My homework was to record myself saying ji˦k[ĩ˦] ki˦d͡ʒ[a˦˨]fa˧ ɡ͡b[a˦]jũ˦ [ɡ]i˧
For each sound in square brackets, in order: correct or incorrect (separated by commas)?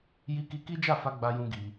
incorrect, correct, correct, correct